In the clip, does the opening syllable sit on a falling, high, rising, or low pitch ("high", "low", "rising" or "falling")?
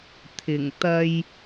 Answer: low